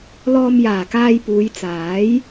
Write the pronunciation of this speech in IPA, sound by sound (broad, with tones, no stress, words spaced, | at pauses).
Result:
lɔː˧mjaː˨˩kaː˧jpuː˨˧j t͡saː˨˥j